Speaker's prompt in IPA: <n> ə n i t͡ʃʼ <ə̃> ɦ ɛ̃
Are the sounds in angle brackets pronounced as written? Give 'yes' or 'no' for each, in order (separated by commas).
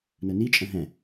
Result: yes, yes